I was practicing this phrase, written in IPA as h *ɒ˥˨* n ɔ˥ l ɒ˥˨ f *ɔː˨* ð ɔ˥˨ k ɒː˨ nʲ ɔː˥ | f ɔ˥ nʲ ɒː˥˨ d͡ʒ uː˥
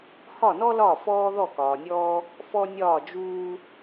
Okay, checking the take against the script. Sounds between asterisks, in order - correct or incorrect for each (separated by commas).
correct, incorrect